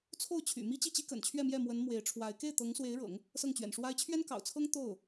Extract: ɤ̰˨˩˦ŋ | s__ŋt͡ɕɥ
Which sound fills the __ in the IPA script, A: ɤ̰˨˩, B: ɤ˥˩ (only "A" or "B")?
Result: B